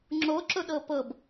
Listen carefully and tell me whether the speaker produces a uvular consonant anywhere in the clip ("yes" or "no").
no